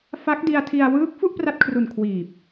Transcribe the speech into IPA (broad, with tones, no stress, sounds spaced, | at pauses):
f a˦˥ k̚ d i˧ a̯ tʰ i˧ a̯ w ɯː˦˥ k̚ f u˥˩ ʔ p r a˦˥ t̚ kʰ r u˨˩ n kʰ w iː˨˩ p̚